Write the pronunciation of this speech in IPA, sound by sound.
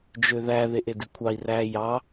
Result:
d͡ʒ ø ð æ ð e ʔ e d i kʷʰ ɑ i̯ r æ j ɑ

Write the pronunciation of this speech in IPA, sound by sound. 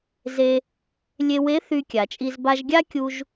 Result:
z e˧ | lʲ e˧ w e˧˥ θ y˧ kʲ a˩ t͡ʃʼ i˧ z b a˧ ʒ ɡʲ a˥ kʲ u˥ ʒ

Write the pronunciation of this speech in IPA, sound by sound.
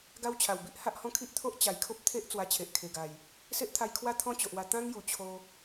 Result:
ɡ a˦ w t͡ɕʰ a˨˩ w b i˦ ʔ h a˦ ʔ h ɔ̃˦ kʰ i˦ ʔ t̪ʰ o˦ ʔ t͡ɕ a˨˩ j kʰ o˦ p̚ t̪ʰ e˦ ʔ t͡s w a˧ t͡ɕʰ e˨ ʔ kʰ e˨˩ ɡ a˨˩ j | s e˦ ʔ t̪ʰ a˧ j kʰ w a˦ t̪ʰ ɔ̃˦ t͡ɕ o˨ ʔ w a˧ t̪ ã˦ ŋ j u˨˩ t͡ɕʰ o˧

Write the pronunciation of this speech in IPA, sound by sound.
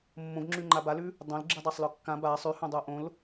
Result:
mː õ ɡ ŋ͡ǁ ʉ ŋ͡ǃ a b a l ʉ | dˤ õ l ɡ͡ǁ i dˤ a sˤ l ɔ kː ã b a sˤ ʉ h õ dˤ o ʔ õ l

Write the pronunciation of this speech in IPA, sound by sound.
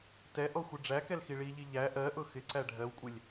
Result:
t ɛ ʔ ɔ xʷ ɪ ɖ͡ʐ æ k ɛ l x i ɭ i ʎ i ʎ æ ʔ ɜ ʔ ʊ x ɪ ǀ æ ɖʱ ɜ w kʷʼ ɪ lʲ

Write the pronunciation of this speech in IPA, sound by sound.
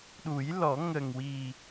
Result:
ɗ u˨˩˦ j l ɔ˨˩˦ ŋ ə˨˩ ŋ w i˨˩

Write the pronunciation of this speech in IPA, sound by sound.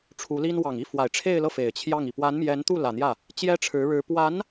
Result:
ʈ͡ʂʰ u˧˥ l i˥ n w ɑ˨˩ ŋ i˥˩ f w a˨˩ ɪ̯ ʈ͡ʂʰ e˥˧ ɪ̯ l ɤ˥˩ f e˨˩ ɪ̯ t͡ɕʰ j ɑ˥˩ ŋ i˩ p w a˧˥ n m j ɛ˧˥ n t̪ u˥˩ l ä˨˩ n̪ j ä˥˩ | t͡ɕ j ɛ˥ ʈ͡ʂʰ ɻ̩˧˥ ɻ ɻ̩˧˥ p w a˧˥ n

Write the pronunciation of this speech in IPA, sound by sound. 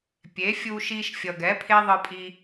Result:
pʲ e˨˦ fʲ u˧ ʃ i˧ ʃ fʲ ʌ˨ ɡ ɛ˨˦ pʰ e˦ ðˤ ɯ˧ pʼ i˧

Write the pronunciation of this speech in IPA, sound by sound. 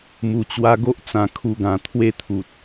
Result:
m u˨˩ t͡ɕ w a˧ ɡ o˦ ʔ t͡s ã˨˩ kʰ u˧ ɡ ã˨˩ t̪ʰ w e˦ t̪ʰ u˨ t̚

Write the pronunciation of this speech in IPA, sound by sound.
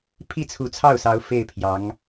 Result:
pʰ i˥˩ t͡sʰ u˧˥ t͡sʰ ɑ˥˩ ʊ̯ s ɑ˧˥ ʊ̯ f e˥˩ ɪ̯ pʰ j ɑ˧˥ ŋ

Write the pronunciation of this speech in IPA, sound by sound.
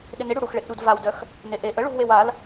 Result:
ɗ ɪ n ɪ ɽ u ɽ u x ɭ e ʔ ɗ u d v a w d œ x | n e ʔ e ʔ ə ɭ u v w e w a l

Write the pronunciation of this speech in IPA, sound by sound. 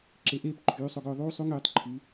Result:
ǁ e˧ ʔ eː˥ p ǃʰ yː˩˥ sˤ o˧ ɡ ɵː˧ ðˤ uː˥ sˤ u˥ ŋ yː˩˥ tˤ ǃʰ y˩˥

